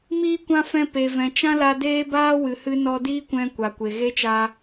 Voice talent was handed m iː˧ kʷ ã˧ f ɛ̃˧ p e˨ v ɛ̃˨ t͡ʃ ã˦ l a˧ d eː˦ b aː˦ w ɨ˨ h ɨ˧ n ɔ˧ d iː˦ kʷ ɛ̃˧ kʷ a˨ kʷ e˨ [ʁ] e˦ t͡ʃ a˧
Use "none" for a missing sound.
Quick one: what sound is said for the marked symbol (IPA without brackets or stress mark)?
ɣ